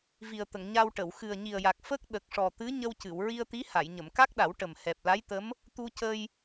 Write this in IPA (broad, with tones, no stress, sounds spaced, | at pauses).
v i˨˩ ə̯ t̪ ə˨˩˨ ŋ ɲ a˧ w ʈ ə˨˩˨ w x ɨ˨˩ ə̯ ɲ i˨˩ ə̯ j a˨˩ k̚ f ə˦˥ k̚ ɗ ə˨˩ k̚ ʂ ɔ˨˩ t̪ ɨ˧˥ ɲ ə˧ w c ɨ˨˩˨ w ɹ i˧ ə̯ t̪ i˧˥ h a˨˩˨ j ɲ ə˨˩˨ m k a˦˥ k̚ ɗ a˨˩˦ w ʈ ə˨˩ m h ɛ˨˩ p̚ l a˧˥ j t̪ ə˧˥ m | t̪ u˧ c ə˧ j